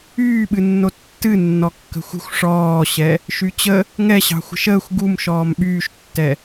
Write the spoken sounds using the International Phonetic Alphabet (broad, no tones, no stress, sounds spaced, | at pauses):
yː ɓ ɨ nː o tː ɨ nː ɔ kː ə̤ xʷ ə̤ xʷ ʂ ɔː ɕ ɛ | ʃ y t͡ɕ ə | ŋ ɛ ɕ ɑ̤ xʷ ə̤ ʃ əː xʷ ɡ u m ʃ ɔː m ɓ yː ʃ tː ɛ